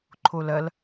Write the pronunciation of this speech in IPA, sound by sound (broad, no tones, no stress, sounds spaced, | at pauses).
ǃʰ o l ɐ l